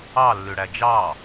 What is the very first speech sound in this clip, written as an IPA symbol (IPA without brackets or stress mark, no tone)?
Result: ɑ